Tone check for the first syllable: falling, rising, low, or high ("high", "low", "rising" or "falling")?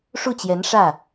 falling